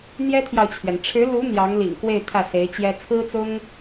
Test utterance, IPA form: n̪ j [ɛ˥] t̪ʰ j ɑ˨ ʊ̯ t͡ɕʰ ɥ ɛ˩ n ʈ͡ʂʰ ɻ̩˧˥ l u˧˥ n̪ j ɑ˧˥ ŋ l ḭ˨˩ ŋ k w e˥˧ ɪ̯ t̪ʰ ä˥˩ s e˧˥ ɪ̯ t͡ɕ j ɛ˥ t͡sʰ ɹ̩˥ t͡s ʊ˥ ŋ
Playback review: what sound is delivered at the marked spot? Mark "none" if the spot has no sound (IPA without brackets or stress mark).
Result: ɛ˥